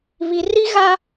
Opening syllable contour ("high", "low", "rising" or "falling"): low